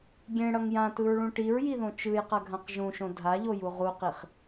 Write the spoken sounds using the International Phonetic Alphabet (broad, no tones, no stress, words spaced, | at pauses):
ɡʲẽɽʌŋ jãtɯɹɭũ ʈiɹjiðõ t͡ʃɯjqʌɡʱãq ʒũʃõ dʱaʎoju ʁuqiχ